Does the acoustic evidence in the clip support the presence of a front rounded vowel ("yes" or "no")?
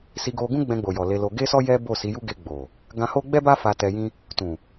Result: no